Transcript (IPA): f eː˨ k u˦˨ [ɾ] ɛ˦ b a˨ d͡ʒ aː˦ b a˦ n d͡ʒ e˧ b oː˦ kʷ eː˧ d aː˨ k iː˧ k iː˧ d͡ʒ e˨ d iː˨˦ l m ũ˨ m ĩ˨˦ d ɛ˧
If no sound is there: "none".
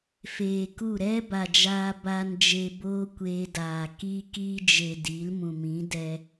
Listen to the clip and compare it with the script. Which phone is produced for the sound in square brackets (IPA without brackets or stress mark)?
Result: ɾ